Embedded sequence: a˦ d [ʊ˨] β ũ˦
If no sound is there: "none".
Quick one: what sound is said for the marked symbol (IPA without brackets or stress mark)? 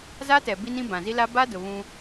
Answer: ʊ˨